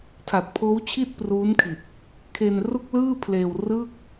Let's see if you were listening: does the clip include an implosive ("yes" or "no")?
no